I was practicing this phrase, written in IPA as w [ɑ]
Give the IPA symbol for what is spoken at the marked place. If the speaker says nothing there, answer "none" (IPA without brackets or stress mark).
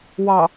ɑ